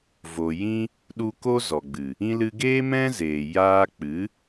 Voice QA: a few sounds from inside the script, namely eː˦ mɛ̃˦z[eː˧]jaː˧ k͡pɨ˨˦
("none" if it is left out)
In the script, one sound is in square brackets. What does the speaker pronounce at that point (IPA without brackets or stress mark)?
eː˨